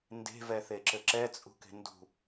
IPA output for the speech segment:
n d e̤ v ɛ θ e ǁ ɘ ǁ ɛ t͡sʼ ṳ k e̤ n d ṳ

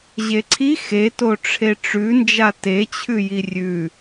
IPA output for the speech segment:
ʑ e ǀʰ i x e t o ʈ͡ʂʰ e ʈ͡ʂ ʉ n d͡ʒ a t e t͡ɕʰ ʉ j i rʲ ʉ

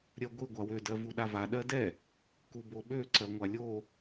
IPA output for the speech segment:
ɾʲ ɜ ɡʷ i ɡʷ a w ø d ɜ v u ɗ a v a ɗ ɜ d ɛ | k u b o ɓ ø ǀ ɜ ŋʷ a lʲ o

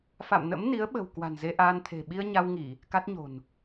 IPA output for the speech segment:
f a̰˧˨ m n ə̰˧˥ m n i˨˦ ə̯ ɓ ə̤˨˩ w k w a̤˨˩ n z e˧ ʔ aː˧ n t̪ʰ e̤˨˩ ɓ i˧ ə̯ ɲ a˧ w ŋ i˧˩˨ | k a˦˥ t̚ ɲ o̤˨˩ n

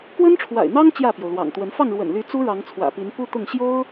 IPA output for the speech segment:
k w ə˦ n ʈ͡ʂʰ w a̰˨˩ ɪ̯ n̪ ɑ˦ ŋ t͡ɕ j ä˥˨ p j o˩ ʊ̯ l w ɑ̰˨˩ ŋ t̪ w ə˨˦ n f ɑ˥˨ ŋ ɻ w ə̰˨˩ n l y˨˦ t͡s u˦ ɻ ɑ˨˦ ŋ t͡sʰ w ä̰˨˩ p i˨˦ n p u˦ t̪ ʊ˥˨ ŋ ɕ j o˦ ʊ̯

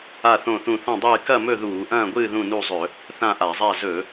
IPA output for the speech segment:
a˥˨ θ õ˥˨ θ ũ˥˨ θ ɐ̃˥˨ dˤ ɨː˥˨ k ɐ˥˨ m ɵ˥˨ ð uː˧˩˧ ʔ ɐ̃ː˥˨ ɡʷ ɨː˥˨ ð ũ˥˨ n u˥˨ zˤ ɵ˧˩˧ | θ ã˥˨ ʔ a˧˩˧ zˤ a˥˨ z ɵ˧˩˧

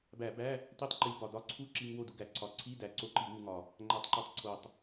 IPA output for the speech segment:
b æ˧˩˧ b æ˧˥˧ | t i˥˨ tˤ ǃ i˧˩˧ b ɒ˨˩ d ɒ˧˥˧ ǀʰ u˥˨ ǁ i˧ ŋ w o˥˨ d u˧ ɡ æ˧˩˧ ǀʰ ɒ˧˩˧ ǀʰ i˧˥˧ d æ˨˩ ǀ o˧ ǃ i˧˩˧ w u˧ ŋ ɒ˨˩ | ŋ͡ǃ æ˥˨ tˤ ǃ u˥˨ tˤ ǀʰ o˨˩ tˤ

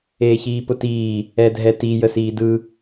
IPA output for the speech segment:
eː ç iː p ʊ t iː | ɛ dʱ ɛ t i j ə s iː d ɯ

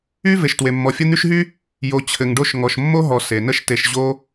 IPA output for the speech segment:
y˥ v e˨ ʃ t w e˨ mː ɔ˨ fʲ ə˦ n̪ y˦ ʃ ɦ y˥ | j o˨ t͡ɕʰ ɘ˨ ŋ ɖ o˦ ʃ ŋ ɔ˨ ʃ mː o˥ ɦ ɔ˨ s e˩ n ə˦ ʃ t e˨ ʃ ʑ o˥

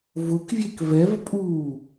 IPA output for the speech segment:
v ʊ k vʲ e k v ɛ v pʼ uː

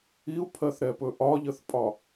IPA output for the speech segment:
i u̯ pʰ ɜ θ ɾ ɛ p ɵ ʔ ɒ ʎ ə θ pʼ ɒ

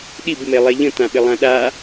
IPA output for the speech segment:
ɗ i b m e lˠ e ʎ ə̃ t̪ ã ɓ ɪ lˠ ã ɗ a

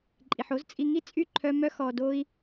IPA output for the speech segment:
ǃʼ i˨ ħ o˦ z t͡sʼ i˧ ŋ i˦ t͡sʼ y˦˨ ǃʰ œ˧ m œ˧ x ɔ˨ d o˦ i̯

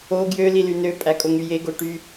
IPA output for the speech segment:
o ɡ j ø l i l y n ø pʼ æ kʼ o ŋ y j e ɡ o ʈ y

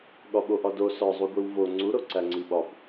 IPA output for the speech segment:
ɠ ɒ ɓ o ʔ ɒ d o s ɒ zˤ u ɡʷ i w v o ŋ͡ǀ u ɾ o ǀ æ ŋ͡ǀ i ɓ ɒ b

